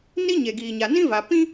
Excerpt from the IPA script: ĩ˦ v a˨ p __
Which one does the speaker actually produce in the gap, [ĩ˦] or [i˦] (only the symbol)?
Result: ĩ˦